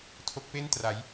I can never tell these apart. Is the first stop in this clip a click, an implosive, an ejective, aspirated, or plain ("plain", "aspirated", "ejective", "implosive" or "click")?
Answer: aspirated